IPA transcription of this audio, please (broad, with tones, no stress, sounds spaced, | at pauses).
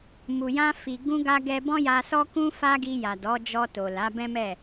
m u˨ j ã˧ f i˨ ɡ ũ˧ ɡ a˧ ɡ ɛ˧ b ɔ̃˦ j a˧ s ɔ˦ k ũ˦ f a˦ ɡ i˧ j a˨ d ɔ˨˦ d͡ʒ ɔ˧ t o˨ l a˨˦ b ɛ̃˦ m ɛ˦˨